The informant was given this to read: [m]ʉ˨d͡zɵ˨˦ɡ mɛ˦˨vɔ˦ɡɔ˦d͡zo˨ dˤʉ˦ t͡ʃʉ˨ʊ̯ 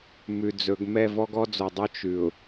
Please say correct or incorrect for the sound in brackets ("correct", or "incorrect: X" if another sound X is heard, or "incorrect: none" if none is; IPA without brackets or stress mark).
correct